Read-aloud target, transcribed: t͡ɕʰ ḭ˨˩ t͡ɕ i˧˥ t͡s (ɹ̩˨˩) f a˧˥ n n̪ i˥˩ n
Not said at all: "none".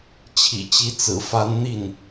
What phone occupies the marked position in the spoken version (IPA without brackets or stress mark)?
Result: ɹ̩˨˩